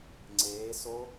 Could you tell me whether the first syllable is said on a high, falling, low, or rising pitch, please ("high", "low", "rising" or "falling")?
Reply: rising